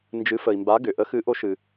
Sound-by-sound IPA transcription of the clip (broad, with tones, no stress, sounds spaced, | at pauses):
n d͡ʒ ɨ˨˥ f ə˨ i̯ m b a˨˥ ɡ ʏ˨ ʔ ə˨˥ x ɨ˨˥ ʔ o˨˥ ʃ ɨ˨